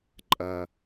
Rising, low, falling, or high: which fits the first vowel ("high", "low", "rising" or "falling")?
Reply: low